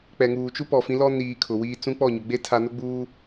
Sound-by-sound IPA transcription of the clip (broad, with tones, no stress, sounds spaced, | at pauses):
k͡p ɛ˨ ŋ uː˨ t͡ʃ u˦ p ɔ˨ f ĩ˨˦ l ɔ˦ n iː˨ kʰ ʊ˨ w iː˦ t͡s ũ˦ k͡p ɔ˦˨ ɲ ʊ˨ ɡ͡b e˦ tʰ a˨ n ʊ˦ ɡ͡b uː˦